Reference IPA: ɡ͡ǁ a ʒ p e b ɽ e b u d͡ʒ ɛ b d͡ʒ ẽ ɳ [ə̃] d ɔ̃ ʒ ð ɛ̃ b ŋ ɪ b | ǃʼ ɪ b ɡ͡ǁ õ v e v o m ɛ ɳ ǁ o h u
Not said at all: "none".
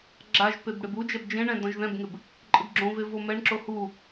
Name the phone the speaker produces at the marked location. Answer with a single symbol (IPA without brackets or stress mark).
ɛ̃